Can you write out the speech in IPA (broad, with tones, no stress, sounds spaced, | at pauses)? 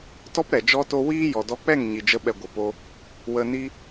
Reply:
t ɔ˦ p ɾ ɛ˨ d͡ʒ ɔ˦ t o˦ w iː˦ j ɔ˨ d ɔ˧ k͡p ɛ˦˨ ŋ ɲ i˨ d͡ʒ ə˧ ɓ ɛ˨ ɡʷ ə˨ p o˦ | w ə˧ n i˦